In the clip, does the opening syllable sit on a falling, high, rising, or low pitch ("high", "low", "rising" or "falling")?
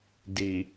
low